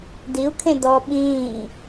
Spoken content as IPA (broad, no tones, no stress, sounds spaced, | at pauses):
d i u̯ kʰ ẽ d ɔ ɓ ĩː